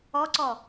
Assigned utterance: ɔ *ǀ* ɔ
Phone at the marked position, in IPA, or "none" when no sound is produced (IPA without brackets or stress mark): ǀ